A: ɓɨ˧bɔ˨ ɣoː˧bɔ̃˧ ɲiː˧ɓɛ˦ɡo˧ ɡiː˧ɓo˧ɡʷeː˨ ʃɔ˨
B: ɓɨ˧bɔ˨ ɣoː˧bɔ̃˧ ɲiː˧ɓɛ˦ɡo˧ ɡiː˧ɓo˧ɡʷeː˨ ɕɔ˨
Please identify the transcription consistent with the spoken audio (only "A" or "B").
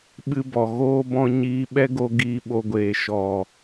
A